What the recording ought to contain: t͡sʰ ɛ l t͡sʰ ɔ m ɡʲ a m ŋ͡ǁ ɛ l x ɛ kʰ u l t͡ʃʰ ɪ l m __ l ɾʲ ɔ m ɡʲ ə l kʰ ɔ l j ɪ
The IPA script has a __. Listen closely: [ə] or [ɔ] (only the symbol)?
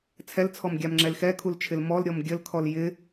ɔ